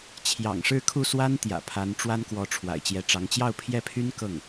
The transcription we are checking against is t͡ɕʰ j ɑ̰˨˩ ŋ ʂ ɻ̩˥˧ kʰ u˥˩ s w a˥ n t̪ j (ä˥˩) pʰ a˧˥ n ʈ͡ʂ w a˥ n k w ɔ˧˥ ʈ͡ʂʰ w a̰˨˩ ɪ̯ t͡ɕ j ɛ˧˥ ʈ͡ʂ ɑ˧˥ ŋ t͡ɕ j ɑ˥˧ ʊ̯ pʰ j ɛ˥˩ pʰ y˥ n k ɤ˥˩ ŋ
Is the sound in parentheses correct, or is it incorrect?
incorrect